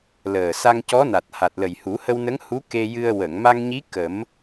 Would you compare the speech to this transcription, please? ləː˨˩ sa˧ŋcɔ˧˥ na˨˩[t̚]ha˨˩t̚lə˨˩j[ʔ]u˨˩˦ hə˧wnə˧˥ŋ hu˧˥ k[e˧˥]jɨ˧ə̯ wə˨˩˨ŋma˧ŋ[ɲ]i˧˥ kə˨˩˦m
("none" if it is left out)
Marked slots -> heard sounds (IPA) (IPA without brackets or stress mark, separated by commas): t̚, h, e˧, ɲ